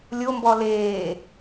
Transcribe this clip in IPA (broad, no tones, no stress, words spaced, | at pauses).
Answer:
lʲombɔ leː